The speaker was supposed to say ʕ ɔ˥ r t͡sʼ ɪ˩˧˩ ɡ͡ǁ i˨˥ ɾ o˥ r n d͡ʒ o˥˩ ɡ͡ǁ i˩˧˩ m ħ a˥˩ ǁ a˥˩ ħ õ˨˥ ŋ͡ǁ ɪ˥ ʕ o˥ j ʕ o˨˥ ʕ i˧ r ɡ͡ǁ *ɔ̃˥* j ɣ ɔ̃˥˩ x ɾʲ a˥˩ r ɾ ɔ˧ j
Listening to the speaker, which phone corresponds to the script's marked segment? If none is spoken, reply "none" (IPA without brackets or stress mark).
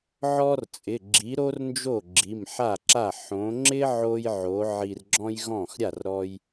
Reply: ɔ̃˥